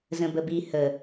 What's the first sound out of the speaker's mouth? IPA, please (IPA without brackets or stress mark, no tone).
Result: z